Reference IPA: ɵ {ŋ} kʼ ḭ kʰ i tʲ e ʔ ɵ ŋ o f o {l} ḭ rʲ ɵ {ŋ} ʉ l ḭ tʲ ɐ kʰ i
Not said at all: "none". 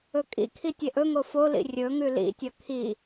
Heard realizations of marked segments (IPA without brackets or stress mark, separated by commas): none, l, ŋ